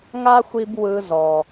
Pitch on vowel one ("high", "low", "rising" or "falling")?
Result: high